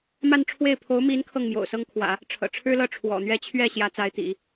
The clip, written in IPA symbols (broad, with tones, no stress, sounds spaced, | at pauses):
m a˥˧ n ʈ͡ʂʰ w e˥˩ ɪ̯ pʰ o˧˥ ʊ̯ m i˧˥ n kʰ ɤ˥˩ ŋ m j o̰˨˩ ʊ̯ s ɤ˥ ŋ kʰ w ä̰˨˩˦ | ʈ͡ʂʰ ɤ̰˨˩ ʈ͡ʂʰ ɻ̩˥ l ɤ˥˩ ʈ͡ʂʰ w ɔ̰˨˩ n̪ ɥ ɛ˥ t͡ɕʰ ɥ ɛ˥˩ ɕ j ä˧˥ t͡s a˧˥ ɪ̯ t̪ ḭ˨˩˦